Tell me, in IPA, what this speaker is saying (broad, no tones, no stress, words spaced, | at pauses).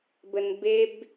bənbeb